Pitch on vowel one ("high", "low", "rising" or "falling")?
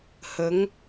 rising